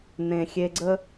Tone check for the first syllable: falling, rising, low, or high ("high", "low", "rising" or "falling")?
low